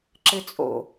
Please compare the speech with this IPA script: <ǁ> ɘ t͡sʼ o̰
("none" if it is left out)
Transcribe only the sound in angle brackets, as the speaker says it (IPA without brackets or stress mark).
ǁ